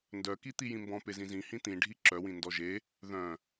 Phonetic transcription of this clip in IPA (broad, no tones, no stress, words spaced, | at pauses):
ndœki t̪ijĩmbɔ̃ pezĩzĩ hĩt̪ĩɖʱi ǁœwĩ ndɔʒe | ðœ̃